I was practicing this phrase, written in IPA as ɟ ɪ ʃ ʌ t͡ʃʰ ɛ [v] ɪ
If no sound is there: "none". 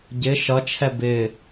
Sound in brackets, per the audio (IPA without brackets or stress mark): b